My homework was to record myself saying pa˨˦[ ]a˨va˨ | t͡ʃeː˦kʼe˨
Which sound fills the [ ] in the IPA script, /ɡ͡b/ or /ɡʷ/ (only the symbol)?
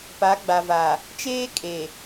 ɡ͡b